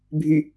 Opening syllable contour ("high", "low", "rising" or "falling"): low